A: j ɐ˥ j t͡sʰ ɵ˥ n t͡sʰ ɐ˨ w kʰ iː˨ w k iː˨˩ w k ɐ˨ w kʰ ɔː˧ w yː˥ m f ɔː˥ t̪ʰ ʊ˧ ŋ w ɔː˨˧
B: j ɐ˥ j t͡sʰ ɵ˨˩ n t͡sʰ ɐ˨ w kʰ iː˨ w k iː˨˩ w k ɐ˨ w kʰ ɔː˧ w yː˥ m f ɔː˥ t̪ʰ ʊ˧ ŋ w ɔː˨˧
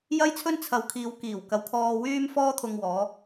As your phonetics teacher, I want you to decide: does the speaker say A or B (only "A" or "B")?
A